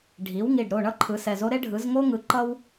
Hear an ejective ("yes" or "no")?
no